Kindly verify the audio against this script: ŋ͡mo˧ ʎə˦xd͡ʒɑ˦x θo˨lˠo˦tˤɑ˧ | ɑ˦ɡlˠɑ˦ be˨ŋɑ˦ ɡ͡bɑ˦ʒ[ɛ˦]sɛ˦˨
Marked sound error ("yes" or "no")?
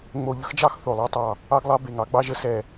yes